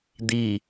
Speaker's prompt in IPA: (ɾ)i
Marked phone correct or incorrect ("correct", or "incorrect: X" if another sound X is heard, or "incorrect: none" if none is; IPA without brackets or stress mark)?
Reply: incorrect: d̪